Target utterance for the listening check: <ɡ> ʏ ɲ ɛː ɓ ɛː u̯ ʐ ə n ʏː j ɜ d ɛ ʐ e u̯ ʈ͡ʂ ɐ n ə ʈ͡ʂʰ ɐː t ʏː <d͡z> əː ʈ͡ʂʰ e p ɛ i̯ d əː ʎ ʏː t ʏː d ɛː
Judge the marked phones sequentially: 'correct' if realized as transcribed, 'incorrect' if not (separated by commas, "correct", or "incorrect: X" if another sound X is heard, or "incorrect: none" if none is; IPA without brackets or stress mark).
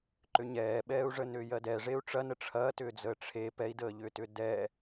incorrect: ǃ, correct